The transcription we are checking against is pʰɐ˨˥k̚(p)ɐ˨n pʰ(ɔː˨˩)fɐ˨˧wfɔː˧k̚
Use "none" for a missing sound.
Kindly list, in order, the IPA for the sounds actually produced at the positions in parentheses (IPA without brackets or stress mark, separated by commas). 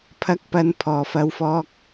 p, ɔː˨˩